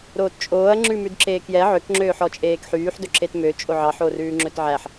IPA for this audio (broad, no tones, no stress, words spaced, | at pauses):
ɾoːtt͡ʃʼoːɐ̯ ŋ͡ǁʉmʉdǁeːkjɛ ʕøkŋ͡ǁøːħ ɔt͡ʃʼeːkħyːħ dɵǁetmøt͡ʃʼo ʕɑħorʉː ŋ͡ǁɵtʕæħ